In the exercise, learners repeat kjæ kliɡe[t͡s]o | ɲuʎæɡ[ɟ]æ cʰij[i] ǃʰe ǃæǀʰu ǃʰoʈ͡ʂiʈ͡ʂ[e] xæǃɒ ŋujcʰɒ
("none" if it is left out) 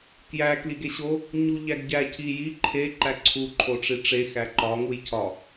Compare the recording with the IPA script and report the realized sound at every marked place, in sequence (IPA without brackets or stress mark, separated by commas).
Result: ɕ, ɟ, i, e